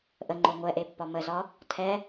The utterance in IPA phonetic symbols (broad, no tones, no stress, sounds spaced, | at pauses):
ʔ ə ŋ͡ǃ o ŋʷ ɛ ʔ e pː ɒ m ə z ɒ | tʰ ɛ